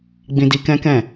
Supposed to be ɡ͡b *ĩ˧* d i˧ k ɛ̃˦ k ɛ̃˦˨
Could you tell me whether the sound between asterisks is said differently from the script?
no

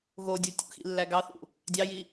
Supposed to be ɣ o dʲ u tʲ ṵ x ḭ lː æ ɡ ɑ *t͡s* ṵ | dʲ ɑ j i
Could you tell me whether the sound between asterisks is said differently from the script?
yes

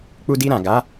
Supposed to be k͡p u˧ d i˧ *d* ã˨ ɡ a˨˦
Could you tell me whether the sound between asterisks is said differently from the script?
yes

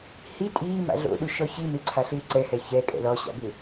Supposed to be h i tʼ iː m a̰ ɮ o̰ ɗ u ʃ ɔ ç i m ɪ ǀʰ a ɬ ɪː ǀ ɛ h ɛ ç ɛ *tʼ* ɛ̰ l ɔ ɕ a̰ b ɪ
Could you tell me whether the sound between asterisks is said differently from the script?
yes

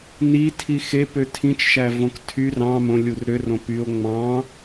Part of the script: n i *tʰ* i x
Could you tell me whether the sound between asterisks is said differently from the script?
no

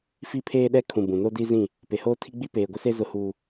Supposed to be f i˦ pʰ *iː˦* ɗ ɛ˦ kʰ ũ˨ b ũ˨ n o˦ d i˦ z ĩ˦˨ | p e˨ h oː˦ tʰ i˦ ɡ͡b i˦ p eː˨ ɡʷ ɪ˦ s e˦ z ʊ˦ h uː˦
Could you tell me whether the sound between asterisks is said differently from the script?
yes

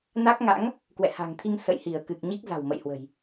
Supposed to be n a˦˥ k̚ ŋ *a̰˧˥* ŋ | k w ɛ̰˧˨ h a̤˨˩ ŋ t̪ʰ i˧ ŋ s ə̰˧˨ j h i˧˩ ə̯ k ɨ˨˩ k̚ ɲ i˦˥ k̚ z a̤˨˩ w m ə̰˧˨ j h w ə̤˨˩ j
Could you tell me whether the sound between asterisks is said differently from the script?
no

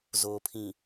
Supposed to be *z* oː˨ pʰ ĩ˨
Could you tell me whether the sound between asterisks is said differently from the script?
no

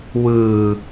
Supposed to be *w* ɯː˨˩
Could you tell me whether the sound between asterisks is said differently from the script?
no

